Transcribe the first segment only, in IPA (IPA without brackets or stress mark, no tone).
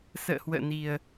s